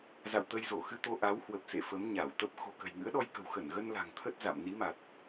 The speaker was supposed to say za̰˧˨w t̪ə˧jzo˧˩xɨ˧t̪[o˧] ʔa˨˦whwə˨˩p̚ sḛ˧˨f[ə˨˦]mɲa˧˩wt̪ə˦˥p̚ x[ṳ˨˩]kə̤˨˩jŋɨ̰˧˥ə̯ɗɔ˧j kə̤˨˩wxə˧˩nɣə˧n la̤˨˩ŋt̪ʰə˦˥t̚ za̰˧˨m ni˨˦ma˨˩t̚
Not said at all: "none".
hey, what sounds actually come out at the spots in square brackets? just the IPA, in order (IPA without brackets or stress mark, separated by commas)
o˧, ə˨˦, o̤˨˩